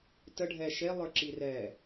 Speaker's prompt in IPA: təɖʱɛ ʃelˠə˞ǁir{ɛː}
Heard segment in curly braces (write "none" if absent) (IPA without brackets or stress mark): ɛː